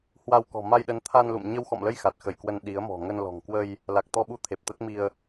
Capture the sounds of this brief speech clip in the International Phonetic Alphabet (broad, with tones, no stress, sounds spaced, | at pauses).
h w a˧ w k ɔ̤˨˩ m a˧ j ɗ ə˨˦ n t̪ʰ a˧ n l ṵ˧˨ m ɲ ə˧ w x ɔ̰˧˨ m l ə˧ j x a˨˩ t̚ x ə˧˩ j k w ə˧ n ɗ i˨˦ ə̯ m ɔ̤˨˩ ŋ ə˧ n l ɔ̤˨˩ ŋ k w ə˧ j | l a˨˩ k̚ t̪ ɔ˧ ɓ u˧ t̪ʰ e˨˩ p̚ t̪ ə˦˥ t̚ m i˧ ə̯